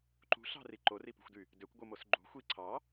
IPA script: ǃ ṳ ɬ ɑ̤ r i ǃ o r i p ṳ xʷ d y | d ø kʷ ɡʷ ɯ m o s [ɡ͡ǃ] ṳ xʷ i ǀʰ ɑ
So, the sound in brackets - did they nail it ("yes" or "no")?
yes